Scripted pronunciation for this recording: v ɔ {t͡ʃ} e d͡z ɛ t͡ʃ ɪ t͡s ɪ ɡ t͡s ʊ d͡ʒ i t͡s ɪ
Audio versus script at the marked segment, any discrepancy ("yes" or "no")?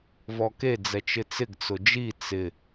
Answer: yes